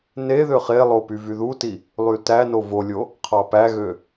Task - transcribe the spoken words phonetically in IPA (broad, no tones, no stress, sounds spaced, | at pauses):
n e ð ø χ e lˠ o p y v y ð u t i | lˠ y t æ n o v o lʲ o | qʰ ɑ p æ ɣ ø